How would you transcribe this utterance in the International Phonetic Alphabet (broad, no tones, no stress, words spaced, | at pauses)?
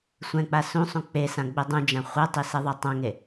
sʷɛ̃k͡pa sũ sˤũk͡pesã ɡ͡bedˤũd͡ʒã χʷetˤi seðˤɛtˤãŋe